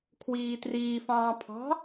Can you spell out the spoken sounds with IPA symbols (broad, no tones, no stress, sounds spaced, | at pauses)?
kʰ w iː t r iː f ɑ̃ː pʰ ɑ̤